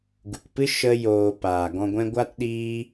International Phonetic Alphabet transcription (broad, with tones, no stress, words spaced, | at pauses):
ɡu˨kpɨ˦ ʃə˦ joː˧ paː˨ɡɔ̃˧ɡʷɛ̃˦ ɡʷa˦tɗiː˦